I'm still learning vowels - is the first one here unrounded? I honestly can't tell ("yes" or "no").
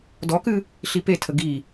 no